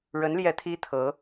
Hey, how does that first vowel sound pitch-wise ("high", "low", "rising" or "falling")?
rising